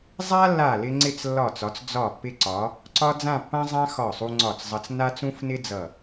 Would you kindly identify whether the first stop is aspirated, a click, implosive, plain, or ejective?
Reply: click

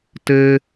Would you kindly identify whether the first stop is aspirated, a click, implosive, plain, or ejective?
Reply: plain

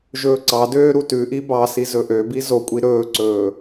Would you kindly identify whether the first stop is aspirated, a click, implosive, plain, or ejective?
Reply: click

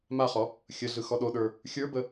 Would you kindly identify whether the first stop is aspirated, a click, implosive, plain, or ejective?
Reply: implosive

